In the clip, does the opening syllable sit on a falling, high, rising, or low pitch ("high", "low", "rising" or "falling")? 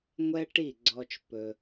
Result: high